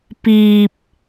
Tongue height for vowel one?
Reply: high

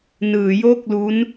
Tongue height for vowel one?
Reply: high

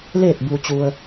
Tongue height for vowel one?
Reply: mid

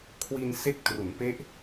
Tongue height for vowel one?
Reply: high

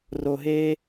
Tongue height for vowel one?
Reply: mid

